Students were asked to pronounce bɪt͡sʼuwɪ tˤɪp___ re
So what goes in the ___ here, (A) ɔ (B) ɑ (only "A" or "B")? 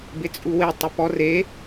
A